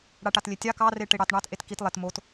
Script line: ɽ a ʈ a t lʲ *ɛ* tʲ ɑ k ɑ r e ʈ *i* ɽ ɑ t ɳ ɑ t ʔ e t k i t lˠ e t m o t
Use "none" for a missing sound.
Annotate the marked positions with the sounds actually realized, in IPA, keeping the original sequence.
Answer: e, e

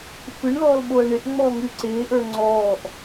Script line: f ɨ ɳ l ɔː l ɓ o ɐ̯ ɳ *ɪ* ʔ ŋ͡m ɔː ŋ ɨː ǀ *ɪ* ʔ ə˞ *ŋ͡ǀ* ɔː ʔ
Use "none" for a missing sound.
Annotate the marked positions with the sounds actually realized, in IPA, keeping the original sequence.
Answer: ɪ, ɪː, ŋ͡ǀ

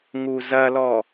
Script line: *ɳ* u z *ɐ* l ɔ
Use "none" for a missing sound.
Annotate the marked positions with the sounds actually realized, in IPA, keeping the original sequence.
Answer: ŋ, ɐ

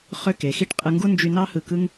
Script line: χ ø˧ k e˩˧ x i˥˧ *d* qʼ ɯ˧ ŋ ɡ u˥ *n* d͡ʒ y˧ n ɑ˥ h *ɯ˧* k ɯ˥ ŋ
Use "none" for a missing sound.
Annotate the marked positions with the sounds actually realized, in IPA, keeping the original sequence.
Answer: ʈ, n, ɯ˧˩

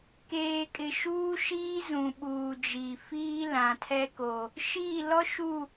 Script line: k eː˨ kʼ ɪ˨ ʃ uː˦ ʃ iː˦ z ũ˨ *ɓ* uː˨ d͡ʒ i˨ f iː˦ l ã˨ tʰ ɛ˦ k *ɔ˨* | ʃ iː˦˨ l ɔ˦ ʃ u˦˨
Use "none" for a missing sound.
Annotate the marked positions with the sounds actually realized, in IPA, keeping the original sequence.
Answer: ɓ, o˨

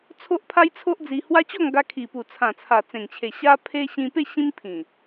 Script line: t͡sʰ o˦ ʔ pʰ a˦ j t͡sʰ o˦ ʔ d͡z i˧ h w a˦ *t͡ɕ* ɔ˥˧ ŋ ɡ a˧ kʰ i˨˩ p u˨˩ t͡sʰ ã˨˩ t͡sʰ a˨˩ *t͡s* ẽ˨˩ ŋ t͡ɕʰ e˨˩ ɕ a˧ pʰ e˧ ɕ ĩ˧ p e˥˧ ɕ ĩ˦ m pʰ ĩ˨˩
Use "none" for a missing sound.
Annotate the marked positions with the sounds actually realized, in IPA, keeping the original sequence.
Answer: t͡ɕ, t͡s

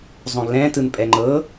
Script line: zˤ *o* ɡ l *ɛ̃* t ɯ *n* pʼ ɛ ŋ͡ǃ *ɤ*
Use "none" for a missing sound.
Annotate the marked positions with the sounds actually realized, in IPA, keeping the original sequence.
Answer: õ, ɛ̃, n, ɤ

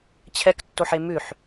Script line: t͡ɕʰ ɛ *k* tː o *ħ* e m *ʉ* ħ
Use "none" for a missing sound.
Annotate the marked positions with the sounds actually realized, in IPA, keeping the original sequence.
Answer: k, ħ, ʉ

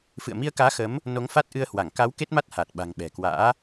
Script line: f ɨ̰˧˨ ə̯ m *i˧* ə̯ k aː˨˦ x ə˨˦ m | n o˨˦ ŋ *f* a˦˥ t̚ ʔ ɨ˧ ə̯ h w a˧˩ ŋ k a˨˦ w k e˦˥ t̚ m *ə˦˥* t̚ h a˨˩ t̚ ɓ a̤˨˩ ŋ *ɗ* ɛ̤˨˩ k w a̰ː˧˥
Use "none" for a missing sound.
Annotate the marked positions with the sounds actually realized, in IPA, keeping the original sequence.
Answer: i˧, f, a˦˥, ɓ

